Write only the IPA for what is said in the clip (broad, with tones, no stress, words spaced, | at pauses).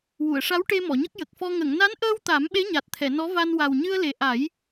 wu˨˩˨ə̯ʂa˧˥wʈe˧ mɔ˨˩˨ɲə˦˥k̚ jə˨˩k̚fɔ˧ ŋə˨˩˨ŋna˧˥nʔəː˧w t̪a˨˩˦m ɓe˧˥ɲa˨˩t̚t̪ʰɛ˨˩˨ nɔ˧˥va˧n wa˨˩wɲɨ˧ə̯le˨˩ ʔa˨˩˦j